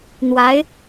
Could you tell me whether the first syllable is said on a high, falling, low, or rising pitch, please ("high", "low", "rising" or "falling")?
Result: rising